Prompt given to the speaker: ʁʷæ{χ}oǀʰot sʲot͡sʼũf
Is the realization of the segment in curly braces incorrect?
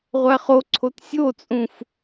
no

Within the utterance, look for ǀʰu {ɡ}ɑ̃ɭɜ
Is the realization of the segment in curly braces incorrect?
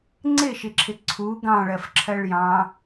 no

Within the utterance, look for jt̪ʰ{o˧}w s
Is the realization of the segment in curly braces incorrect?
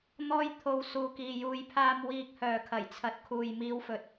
no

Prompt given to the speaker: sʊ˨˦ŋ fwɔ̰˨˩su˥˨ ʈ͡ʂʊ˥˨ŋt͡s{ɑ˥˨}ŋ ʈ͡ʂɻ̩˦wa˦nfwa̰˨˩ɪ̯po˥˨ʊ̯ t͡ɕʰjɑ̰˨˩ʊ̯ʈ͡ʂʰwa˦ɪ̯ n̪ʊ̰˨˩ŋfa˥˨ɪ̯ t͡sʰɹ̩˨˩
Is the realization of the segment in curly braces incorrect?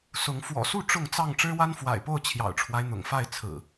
no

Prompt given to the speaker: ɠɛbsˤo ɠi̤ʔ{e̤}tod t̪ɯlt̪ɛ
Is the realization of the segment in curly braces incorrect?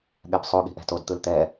yes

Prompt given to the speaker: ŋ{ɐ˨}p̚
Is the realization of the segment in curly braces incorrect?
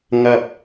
no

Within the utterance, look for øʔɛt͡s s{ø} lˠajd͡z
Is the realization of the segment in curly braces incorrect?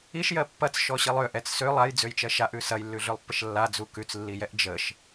no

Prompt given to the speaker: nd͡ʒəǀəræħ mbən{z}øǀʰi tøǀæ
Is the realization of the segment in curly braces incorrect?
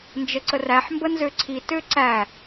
no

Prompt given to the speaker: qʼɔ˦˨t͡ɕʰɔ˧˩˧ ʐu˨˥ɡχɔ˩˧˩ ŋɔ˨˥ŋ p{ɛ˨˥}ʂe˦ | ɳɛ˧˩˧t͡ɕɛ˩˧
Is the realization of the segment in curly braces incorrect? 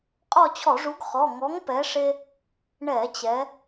no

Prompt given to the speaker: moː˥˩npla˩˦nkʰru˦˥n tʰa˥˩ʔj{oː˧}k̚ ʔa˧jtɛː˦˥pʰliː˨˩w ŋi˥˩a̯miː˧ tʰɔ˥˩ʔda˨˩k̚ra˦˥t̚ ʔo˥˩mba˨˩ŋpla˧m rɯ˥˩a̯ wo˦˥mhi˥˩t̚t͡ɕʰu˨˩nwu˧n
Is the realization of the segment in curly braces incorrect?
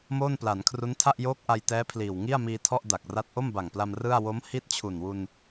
yes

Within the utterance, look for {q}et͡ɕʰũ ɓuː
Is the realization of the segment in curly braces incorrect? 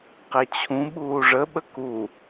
no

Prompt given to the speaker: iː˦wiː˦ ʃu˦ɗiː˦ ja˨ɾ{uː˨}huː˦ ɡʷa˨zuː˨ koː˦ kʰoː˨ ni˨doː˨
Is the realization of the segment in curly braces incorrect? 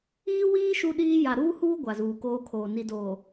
yes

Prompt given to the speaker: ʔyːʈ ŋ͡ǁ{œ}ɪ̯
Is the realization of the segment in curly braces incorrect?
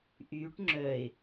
no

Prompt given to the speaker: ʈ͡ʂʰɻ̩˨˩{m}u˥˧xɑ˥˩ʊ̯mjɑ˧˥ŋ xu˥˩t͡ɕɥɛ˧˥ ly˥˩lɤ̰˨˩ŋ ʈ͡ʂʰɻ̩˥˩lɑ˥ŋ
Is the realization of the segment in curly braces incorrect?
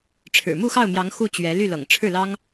no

